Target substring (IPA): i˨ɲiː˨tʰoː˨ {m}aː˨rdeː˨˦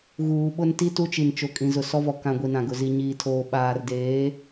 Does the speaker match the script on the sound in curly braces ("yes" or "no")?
no